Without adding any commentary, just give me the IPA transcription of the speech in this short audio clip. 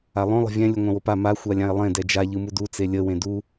a lˠ õ lˠ ə̤ vʲ ɛ̃ lʲ u ŋʷ ã w o p a m a xʷ a lʲ ã e̯ lˠ ẽ d ɛ d͡ʒ a ʎ ɯ m u d u t͡s e lʲ ə w ẽ d u

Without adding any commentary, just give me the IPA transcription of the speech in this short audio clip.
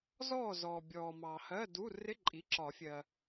z ɔː˥˨ z ɔː˨ bʲ ɔː˨ m ɑː˨ h ɜ˧˥˧ d u˧˥˧ r ɪ˧˥˧ ǃʼ i˩˥ ǁ ɒ˨˩˦ fʲ ɜ˨

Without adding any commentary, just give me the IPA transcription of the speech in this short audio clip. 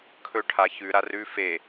kʰ ɵ ʈʰ a ç ʉ ɾ a r ʉ f e

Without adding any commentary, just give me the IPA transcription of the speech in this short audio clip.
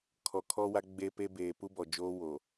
kʰ ɔ˨ kʰ ɔ˦ w a˦ ɡ͡b e˦ p e˦ b eː˨ p u˦ b ɔ˨ d͡ʒ oː˦ w o˨

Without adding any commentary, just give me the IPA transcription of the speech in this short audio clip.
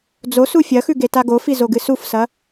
d͡z o s u fʲ ɐ x ʉ ɡ e t a ɡ o f i z o ɡ ɨ s u f s ɐ

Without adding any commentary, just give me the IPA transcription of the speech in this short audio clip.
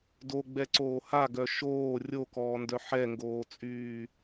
d o ɡ͡b ɛ ǀ oː h a ɡ œ ʃ oː rʲ o k ɔː n d œ ħ ɛ ŋ ɡ oː t͡sʼ yː

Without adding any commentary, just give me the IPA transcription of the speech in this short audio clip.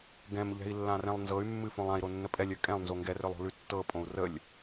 ɡ ɛ̃ m ʎ ɛ̤ i̯ lː ã r ɛ̃ lˠ n z ɤ y̯ mː ɨ f õ lˠ ã i̯ ɾ o nː ə pʼ ɛ lʲ œ kʼ ɛ̃ lˠ n z o ŋ ɡ ɛ r œ lˠ o̤ l ʉ tː ɤ pʼ õ u̯ r ə lʲ

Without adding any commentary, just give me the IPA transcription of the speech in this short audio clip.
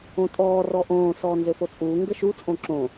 õ tʼ ɔː r ɔ ʔ õː s ɔː n z ø f o t͡sʼ uː ŋ ɡ ə ʃ u t͡sʼ õ ǁ õ

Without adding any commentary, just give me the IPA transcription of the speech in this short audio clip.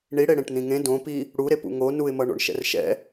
ɳ i ɽ e ɽ ẽ ʈ n̪ ĩ ŋ ẽ d õ p i | ɽ u ɾ e p ṵ ŋ o n u ɪ̯ m ʌ ɳ o̰ ɳ ʃ ɛ̰ r ʃ ɛ̰

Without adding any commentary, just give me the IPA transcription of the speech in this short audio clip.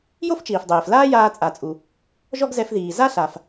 j o˥ f t͡ʃ iː˩ f dˤ eː˩ f l aː˥ j aː˧ t͡sʼ a˩ t͡sʼ u˩ | ʒ ɔ˥ ɡ z ɛ˧ f ð iː˩ z a˥ ɬ a˩ f

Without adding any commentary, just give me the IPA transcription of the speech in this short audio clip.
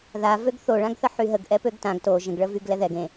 ð a v ø ɡ θ o ɭ ã ɡ θ ə ħ y ɦ ə ɡ ʔ ɛ p ø ɡ t ã ɡ t o ʒ ə̃ ɡ ɭ ə v y ɡ l ɛ ð ɛ ɡ ẽ

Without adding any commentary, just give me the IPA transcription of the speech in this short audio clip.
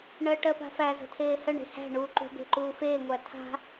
ɳ ɜ ʈ ɜ p a̤ f æ z ə̤ tʰ eː h ə ɳ e̤ h æ̤ ɳ uː ǃ ṳ b e̤ ǃ uː f eː ŋʷ æ tʰ a̤

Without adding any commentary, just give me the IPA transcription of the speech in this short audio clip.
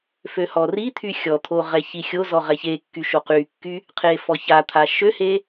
f ø h ɔ r i t̪ʰ y xʲ ɔ t̪ʰ o ʁ ɛ ç i xʲ o z ɔ ʁ ɛ ç e kː y ʃ o q y kː y | qʰ e f ɔ ç a t̪ʰ a ʃ ø h e

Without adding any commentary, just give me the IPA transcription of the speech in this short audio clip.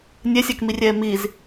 nʲ ɛ sʲ a k m i rʲ ɛː m i z

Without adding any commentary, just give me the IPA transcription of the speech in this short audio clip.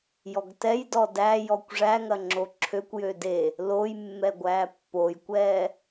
j ɔ ɡ t ɛ j d ɔ d æ j ɔ kʷ ʐ æ ŋ ɐ ŋ͡ǁ o ǁʰ ø kʷ j ø d e | l o j mː ɛ ɡʷ æː pː o j kʷ ɛː

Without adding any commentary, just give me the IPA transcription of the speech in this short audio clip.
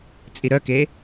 t͡sʼ i ɾ œ k e

